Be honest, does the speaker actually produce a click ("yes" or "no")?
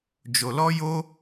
no